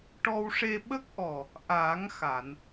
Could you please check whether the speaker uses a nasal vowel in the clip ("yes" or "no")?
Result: no